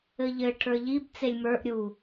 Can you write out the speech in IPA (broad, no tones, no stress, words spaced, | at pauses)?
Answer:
ɘʎɘ ʈʰə˞ʎib t͡selʲmə˞ʔ ɾʲu